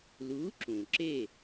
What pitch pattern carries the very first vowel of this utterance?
rising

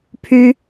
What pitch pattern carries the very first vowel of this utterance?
high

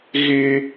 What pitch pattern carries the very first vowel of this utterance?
high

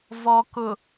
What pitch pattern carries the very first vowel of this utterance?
low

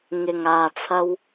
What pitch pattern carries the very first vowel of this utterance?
low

